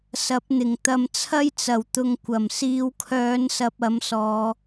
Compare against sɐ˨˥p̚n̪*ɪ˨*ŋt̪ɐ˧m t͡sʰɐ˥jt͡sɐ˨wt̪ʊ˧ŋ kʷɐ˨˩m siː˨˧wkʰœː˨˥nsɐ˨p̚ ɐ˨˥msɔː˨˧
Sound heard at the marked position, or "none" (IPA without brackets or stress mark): ɪ˨˩